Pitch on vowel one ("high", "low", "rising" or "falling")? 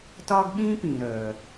high